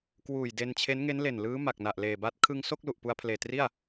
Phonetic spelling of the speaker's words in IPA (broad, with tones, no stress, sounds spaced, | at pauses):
k w uː˨˩ j d e˧ n t͡ɕʰ e˦˥ n ŋ e˦˥ n l e˨˩ n l ɯː˦˥ m a˨˩ k̚ n a˨˩ ʔ l eː˨˩ b a˦˥ t̚ kʰ ɯ˧ ŋ s o˥˩ k̚ l u˨˩ ʔ p u˧ a̯ pʰ l eː˨˩ t r i˥˩ a̯